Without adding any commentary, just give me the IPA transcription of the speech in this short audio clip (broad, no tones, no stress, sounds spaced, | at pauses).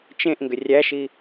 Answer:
t͡ʃ ẽ ʔ ŋ ɡ ʏ rʲ æ ʃ i